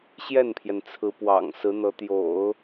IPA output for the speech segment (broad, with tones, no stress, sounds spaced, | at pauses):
ɕ j ɛ˥˩ n pʰ j ɛ˩ n t͡sʰ ɹ̩˧˥ p w ɑ̰˨˩ ŋ s ɹ̩˧˥ n̪ ɤ˧˥ t̪ j o̰˨˩˦ ʊ̯